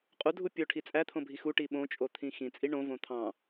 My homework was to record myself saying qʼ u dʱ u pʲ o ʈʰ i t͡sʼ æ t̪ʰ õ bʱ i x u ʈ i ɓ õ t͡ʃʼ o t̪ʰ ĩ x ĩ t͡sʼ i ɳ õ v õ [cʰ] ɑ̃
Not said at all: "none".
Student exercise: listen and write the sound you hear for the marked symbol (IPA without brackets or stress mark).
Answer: t̪ʰ